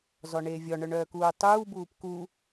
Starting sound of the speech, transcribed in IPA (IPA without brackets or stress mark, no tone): z